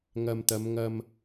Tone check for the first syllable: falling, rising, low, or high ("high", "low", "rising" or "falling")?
low